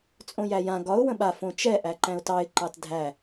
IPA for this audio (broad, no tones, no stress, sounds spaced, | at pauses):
t͡sʼ õ j æ j ã ɡ ɒ ʊ̯ w ə̃ ɓ a f õ t͡ʃ ɛ ʔ æ ǃ æ̃ ʊ̯ t ɑ ɪ̯ ǃ ɑ t dʱ æ